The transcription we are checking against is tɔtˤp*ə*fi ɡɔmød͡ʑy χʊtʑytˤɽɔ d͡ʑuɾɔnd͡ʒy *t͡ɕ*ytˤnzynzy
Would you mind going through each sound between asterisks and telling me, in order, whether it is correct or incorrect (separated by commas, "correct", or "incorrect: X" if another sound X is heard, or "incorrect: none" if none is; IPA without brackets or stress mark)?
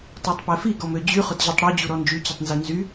incorrect: ɛ, correct